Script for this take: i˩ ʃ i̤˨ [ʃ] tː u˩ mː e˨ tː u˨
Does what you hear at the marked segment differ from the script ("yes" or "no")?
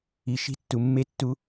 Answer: yes